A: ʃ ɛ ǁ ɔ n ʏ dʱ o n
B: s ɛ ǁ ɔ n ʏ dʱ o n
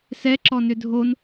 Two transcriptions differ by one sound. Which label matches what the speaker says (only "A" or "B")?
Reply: B